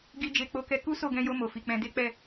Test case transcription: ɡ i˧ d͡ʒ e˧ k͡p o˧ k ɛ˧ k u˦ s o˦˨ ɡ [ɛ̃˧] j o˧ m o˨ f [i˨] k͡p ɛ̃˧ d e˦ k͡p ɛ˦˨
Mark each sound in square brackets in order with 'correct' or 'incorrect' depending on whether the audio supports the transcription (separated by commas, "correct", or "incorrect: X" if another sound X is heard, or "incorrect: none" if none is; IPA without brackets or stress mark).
correct, correct